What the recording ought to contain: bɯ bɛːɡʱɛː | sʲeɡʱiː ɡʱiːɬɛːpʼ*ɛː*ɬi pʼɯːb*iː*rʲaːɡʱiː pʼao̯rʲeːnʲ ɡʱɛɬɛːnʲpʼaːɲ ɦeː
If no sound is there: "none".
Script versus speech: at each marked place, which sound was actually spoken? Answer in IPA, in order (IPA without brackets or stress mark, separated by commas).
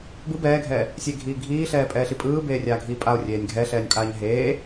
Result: ɛː, eː